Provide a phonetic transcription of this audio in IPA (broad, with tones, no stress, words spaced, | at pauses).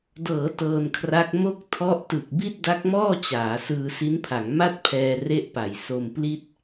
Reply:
dɤː˩˦ tɤː˧nkʰra˦˥k̚ mo˥˩k̚ tʰɔ˦˥ʔtɯ˨˩k̚ bi˥˩t̚da˦˥k̚mɔː˥˩ t͡ɕaː˩˦ sɯː˧si˦˥npʰa˩˦ŋ ma˥˩t̚pʰɛː˧ re˥˩ʔpa˨˩j so˧mpli˥˩t̚